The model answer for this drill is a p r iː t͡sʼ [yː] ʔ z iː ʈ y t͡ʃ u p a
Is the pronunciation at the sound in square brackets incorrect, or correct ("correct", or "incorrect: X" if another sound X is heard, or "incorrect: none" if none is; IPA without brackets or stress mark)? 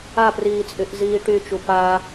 incorrect: y